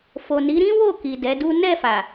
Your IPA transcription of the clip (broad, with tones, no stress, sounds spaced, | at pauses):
f o˨ n i˨˦ ɾ ĩ˦ w o˦˨ k i˨ d ɛ˨˦ d u˦ n ɛ˦˨ f a˨